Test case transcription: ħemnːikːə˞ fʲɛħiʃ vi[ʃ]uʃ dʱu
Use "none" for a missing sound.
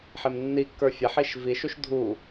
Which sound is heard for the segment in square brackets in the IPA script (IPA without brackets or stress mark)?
ʃ